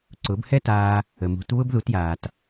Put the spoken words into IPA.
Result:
ǀʊ˩˥bhɛ˥taː˧ | ə˩mṳ˩˥t βʊ˥bðu˩˥t jaː˩t

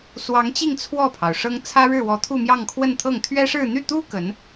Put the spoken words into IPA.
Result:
swɑ˧˥ŋt͡ɕi˥˧ŋ t͡sʰwɔ˥˩pʰɑ˩ʊ̯ ʂɤ˥ŋ t͡sʰä˥ɻɻ̩˥˩wɔ˧˥ t̪ʰu˥˧mjɑ˥˧ŋkʰwə˥˧nt̪ʰɤ˥˩ŋ t̪ʰɥɛ˥ʂɻ̩˥˧ n̪y˥˩t̪u˥ kə˧˥n

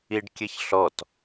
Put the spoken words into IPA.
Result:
iɖkʲɘçɬɔt

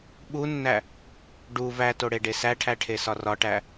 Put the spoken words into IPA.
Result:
ɓunːæ | ɖu væto ɽeɖesæʈʰæ ʈʰesɒrɒʈæ

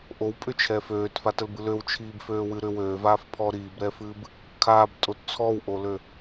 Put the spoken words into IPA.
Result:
ʔowpʼʏt͡ʃʰɛ føːtfatəlbɨ løwt͡ʃʰiːbføːwɨ ɾʏ wøːvaːfpʰɔː ɾiːbɾɛːfɨːb | kʰaːbtʼot t͡sʰɔwʔolø

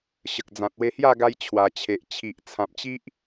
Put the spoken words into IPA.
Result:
ɕə˨k̚d͡zã˨t̚we˧hja˥˧ ɡa˧jt͡ɕʰwa˨˩t͡ɕʰe˨ʔt͡ɕʰi˨ʔ t͡sʰã˨p̚t͡ɕi˦ʔ

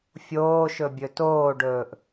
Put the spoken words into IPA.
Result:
fʲoːʃɵ bʲɵtoːɖɵːʔ

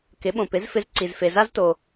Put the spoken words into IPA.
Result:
kɪ˩˥ɓõ˩pɪ˩˥zfɪ˧z ǀi˩zfe˩za˥zto˩

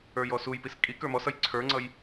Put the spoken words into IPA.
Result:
ə˞jɔsujpis kʼi kə˞mɔsʌj ǀʰə˞ŋ͡ǀʌj

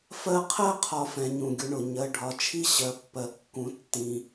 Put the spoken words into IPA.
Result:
fɜ˦qʰɜ˥qʰɒ˨ fɛ̃˨ɲũ˩ɡʲʊ˨ɳʊ˩ ɲɜ˨ɖʱɒ˨t͡ʃʰi˥ ɕɜ˨pːɜ˨kːũ˨ tːĩ˨

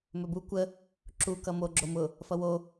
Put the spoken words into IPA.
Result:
mɵbu kʷə | ǁukʌ moɡ͡ǁo mʊ | fʌwo

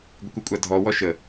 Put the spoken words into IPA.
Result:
ɡʷɪkʷəkʷʼadʱɔ wɔʃə

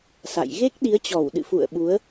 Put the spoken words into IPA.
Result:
sa̰˧˨j ɣe˦˥k̚ɗi˨˦ə̯t͡ɕɔ˧˩w ɗɨ̰˧˨fṵ˧˨ə̯ ɓu˨˦ə̯

